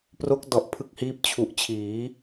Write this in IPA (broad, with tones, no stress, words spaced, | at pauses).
pro˦˥k̚dɔ˨˩ʔ pʰɯ˦˥k̚hiː˦˥p̚ t͡ɕʰu˨˩ʔt͡ɕʰiː˩˦